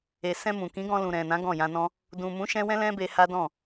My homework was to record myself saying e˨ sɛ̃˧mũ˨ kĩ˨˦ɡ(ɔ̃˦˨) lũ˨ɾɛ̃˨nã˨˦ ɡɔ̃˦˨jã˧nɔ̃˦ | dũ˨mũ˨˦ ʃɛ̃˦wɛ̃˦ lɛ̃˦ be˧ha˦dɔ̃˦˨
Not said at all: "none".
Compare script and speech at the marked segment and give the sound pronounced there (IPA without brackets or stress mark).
ɔ̃˧